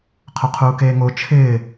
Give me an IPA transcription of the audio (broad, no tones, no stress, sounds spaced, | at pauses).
qʰ ʊ qʰ uː k eː ŋ o t͡ʃʰ ɪː